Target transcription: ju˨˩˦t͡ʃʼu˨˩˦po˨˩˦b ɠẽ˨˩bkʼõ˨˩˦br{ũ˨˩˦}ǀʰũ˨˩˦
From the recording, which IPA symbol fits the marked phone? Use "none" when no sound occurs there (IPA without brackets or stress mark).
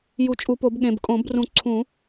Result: ũ˨˩˦